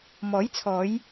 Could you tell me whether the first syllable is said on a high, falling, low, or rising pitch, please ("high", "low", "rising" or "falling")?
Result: rising